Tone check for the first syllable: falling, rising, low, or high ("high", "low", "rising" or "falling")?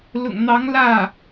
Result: low